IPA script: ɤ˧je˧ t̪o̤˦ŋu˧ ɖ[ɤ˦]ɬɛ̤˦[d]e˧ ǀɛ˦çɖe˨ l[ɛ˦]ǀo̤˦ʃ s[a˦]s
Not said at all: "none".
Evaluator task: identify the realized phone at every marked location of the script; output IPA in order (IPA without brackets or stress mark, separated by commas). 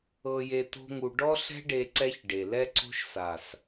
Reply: ɔ˦, ɖ, ɛ˦, a˨